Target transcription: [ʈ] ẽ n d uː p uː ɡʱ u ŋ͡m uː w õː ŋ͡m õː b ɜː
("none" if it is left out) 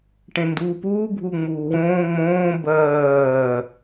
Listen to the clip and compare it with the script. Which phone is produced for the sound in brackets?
ʈ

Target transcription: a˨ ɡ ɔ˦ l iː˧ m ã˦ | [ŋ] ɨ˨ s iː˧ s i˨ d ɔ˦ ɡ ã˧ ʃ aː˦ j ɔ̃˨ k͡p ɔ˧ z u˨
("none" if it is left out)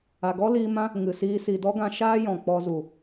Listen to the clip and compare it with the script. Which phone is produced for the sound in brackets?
ŋ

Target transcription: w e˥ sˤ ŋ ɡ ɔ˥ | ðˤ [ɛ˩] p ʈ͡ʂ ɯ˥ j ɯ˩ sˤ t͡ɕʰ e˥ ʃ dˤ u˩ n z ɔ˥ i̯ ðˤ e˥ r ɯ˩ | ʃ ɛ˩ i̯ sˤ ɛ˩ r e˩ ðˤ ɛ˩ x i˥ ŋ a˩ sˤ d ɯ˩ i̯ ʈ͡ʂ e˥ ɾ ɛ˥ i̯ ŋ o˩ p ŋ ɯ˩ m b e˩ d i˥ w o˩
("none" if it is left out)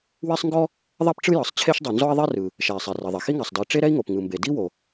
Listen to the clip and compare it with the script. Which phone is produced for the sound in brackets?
ɛ˥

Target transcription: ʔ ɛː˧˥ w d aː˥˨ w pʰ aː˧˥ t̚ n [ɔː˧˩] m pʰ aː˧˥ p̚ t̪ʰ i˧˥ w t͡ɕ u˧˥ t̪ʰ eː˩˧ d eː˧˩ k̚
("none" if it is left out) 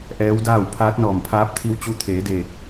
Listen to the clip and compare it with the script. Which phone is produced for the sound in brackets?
ɔː˧˩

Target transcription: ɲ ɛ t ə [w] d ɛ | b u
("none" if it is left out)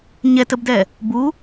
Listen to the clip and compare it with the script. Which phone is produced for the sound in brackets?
b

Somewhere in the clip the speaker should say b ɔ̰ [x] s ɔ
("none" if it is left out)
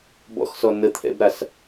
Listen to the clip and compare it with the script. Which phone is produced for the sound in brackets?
x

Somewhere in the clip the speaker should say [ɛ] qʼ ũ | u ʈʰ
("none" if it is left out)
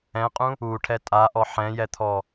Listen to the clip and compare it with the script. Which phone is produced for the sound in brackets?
ɛ̃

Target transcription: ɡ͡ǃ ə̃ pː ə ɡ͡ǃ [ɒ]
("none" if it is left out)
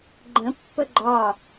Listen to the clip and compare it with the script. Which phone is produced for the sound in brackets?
ɒ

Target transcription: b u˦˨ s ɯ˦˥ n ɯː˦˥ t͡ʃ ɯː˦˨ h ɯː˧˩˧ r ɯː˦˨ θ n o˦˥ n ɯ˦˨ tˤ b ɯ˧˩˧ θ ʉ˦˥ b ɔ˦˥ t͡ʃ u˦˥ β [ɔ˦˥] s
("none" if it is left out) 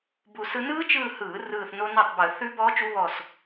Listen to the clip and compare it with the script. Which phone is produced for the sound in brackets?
ɔ˦˨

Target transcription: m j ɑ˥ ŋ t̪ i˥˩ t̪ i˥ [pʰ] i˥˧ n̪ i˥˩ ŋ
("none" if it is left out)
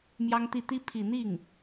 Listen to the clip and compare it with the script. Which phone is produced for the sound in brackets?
pʰ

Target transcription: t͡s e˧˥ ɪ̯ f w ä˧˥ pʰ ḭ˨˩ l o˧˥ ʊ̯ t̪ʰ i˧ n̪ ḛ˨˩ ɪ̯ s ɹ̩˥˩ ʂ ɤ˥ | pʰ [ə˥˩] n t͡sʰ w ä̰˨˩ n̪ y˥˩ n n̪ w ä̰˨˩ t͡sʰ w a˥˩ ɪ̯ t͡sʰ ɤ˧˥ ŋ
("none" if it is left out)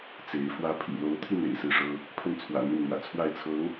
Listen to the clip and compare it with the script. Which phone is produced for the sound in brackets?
ə˥˩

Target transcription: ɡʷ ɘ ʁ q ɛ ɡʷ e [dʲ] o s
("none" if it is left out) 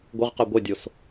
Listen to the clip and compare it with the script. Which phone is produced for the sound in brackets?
dʲ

